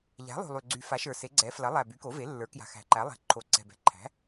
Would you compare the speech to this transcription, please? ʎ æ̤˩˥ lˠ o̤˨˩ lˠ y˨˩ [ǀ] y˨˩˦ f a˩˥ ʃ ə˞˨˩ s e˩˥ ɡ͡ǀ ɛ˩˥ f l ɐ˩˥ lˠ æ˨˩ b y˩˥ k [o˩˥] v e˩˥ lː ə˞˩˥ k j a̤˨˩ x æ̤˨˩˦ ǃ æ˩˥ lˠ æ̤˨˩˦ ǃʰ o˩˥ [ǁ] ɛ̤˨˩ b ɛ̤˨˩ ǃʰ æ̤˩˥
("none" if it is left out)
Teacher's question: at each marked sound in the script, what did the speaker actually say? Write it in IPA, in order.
ɡ͡ǀ, o˩˥, ǀ

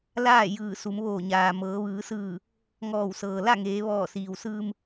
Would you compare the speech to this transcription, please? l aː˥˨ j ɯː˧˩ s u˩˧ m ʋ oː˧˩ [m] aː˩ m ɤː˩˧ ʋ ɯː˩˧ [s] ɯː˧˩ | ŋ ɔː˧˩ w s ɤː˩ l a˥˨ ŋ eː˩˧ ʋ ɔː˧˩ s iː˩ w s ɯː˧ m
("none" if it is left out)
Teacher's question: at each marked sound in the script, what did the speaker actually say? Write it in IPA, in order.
ɲ, s

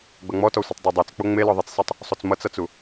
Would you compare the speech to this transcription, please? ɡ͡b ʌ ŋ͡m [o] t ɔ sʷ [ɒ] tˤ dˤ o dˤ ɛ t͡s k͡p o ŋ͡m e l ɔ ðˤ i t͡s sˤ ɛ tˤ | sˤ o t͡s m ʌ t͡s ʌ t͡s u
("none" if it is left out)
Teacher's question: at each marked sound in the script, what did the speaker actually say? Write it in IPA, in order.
ɔ, ʌ

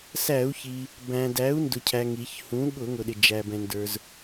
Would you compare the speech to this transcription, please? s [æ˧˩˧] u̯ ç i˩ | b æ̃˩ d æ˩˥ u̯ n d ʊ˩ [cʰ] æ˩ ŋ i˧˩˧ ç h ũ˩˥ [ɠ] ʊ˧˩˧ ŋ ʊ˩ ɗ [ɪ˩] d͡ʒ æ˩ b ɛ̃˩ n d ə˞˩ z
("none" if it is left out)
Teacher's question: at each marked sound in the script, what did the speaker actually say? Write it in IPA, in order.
æ˧˩˧, cʰ, ɠ, ɪ˩

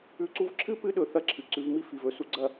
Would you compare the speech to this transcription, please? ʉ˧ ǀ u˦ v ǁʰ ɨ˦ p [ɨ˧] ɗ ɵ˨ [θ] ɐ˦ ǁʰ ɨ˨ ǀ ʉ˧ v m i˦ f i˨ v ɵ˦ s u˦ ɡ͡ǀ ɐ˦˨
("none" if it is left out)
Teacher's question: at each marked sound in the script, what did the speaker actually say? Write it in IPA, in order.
ɨ˧, θ

